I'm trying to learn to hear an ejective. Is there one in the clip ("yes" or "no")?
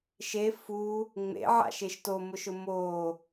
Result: no